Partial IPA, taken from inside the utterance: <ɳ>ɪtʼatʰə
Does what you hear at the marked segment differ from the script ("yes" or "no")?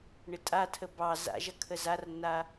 no